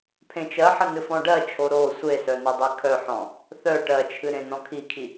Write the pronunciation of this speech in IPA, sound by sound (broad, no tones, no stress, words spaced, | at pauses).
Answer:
pʰẽt͡ʃɜħɐ nɨfɔ̃ɖɜt͡ʃʰo ɾo sʷesœ nɐdˤekʰœħɔ̃ | θœ ʈɜt͡ʃʰɨ ɾẽnɔ̃kʰikʰi